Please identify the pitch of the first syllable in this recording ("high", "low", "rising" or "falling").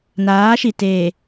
rising